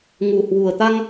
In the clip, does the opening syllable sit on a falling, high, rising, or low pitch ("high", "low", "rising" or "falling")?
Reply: low